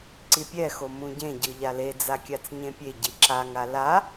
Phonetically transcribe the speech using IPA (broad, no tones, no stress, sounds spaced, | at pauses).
ǀ i pʲ ɛ x o m ũ ɟ ẽ ɟ ɯ ʎ a l e d͡z a kʲ a t͡s ɲ ẽ pʲ e ɟ i ǁ a ŋ a l a